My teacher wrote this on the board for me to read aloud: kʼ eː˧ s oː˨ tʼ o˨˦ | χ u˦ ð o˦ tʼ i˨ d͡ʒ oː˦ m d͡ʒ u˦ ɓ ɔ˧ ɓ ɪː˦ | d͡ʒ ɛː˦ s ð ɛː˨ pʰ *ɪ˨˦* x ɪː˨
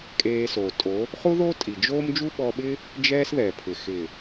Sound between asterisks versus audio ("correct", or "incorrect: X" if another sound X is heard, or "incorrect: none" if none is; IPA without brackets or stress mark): incorrect: ɪ˨